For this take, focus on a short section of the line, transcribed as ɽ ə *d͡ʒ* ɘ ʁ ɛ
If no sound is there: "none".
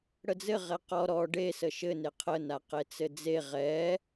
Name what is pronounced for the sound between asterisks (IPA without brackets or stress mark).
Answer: d͡z